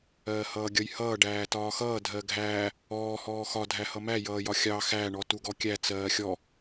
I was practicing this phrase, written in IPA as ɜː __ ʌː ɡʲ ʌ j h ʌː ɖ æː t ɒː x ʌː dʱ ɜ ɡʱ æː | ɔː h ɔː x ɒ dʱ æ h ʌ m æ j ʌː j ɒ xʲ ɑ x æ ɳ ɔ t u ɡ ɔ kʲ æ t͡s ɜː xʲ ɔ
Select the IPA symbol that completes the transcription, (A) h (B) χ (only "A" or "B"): A